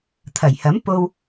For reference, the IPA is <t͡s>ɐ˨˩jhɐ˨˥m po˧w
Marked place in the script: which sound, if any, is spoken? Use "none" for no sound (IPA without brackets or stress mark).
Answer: t̪ʰ